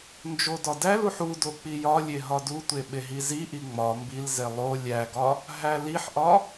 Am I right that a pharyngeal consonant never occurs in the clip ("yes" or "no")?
no